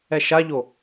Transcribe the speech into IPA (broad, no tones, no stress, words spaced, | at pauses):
ɛʃaʎo